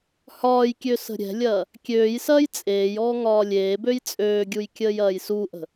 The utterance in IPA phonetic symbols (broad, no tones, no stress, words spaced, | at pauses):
hɒːjkʲø sə̤ɾʲɛ̤lʲɐː | kʲøːjsɐːj t͡sʼeːjɔː ŋɒːlʲeːbøj t͡sʼøːɡʲuj kʲəːjɐːjsuʔə̤